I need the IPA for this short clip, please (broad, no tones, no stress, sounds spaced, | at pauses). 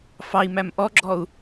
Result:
f ɑ i̯ m æ m ʔ ɔ ɡ͡ǁ ɔ u̯